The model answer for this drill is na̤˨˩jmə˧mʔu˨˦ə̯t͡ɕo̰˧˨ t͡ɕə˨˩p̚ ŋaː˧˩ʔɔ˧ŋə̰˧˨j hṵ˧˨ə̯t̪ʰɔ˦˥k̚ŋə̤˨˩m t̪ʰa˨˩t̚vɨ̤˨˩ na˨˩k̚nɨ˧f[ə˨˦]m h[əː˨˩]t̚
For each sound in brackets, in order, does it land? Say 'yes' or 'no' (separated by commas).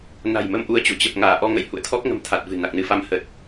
no, no